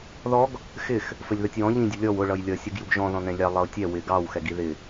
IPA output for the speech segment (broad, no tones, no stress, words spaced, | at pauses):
ðɔɡ | xɪx | fəlʲðʌtʲwɔ̃ ʎĩ dʲʊlʲɔw ʊ ɭʌjlʲʌ sʲuɡjuɡʒɔ̃ ðɔ̃nɛ̃lʲɑ lˠʌʊ̯tʲɛ wɪ ɡɑw xɛɡiðɪ